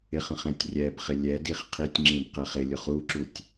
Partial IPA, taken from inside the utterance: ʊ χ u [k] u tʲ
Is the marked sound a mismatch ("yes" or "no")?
yes